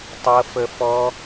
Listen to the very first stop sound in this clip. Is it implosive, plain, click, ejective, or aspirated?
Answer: plain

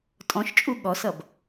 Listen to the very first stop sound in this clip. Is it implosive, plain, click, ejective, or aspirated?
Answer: ejective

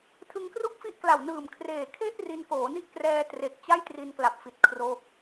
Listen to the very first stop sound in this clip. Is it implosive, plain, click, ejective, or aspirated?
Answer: aspirated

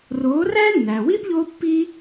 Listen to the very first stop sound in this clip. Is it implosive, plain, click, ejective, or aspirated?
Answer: plain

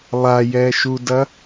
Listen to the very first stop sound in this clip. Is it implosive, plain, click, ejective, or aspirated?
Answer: plain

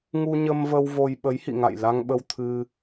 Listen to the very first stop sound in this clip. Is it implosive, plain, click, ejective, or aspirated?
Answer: implosive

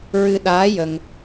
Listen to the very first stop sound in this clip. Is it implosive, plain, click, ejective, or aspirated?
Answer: implosive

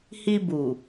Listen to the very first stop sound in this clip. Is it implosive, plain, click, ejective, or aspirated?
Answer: plain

